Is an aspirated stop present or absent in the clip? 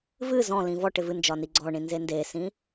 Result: absent